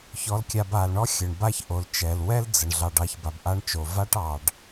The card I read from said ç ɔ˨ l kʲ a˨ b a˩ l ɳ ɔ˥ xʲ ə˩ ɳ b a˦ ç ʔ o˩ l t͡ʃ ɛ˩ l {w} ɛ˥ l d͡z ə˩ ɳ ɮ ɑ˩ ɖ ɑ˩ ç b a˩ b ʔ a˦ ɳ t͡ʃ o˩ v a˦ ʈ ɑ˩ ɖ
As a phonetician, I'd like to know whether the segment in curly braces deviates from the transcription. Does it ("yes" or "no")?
no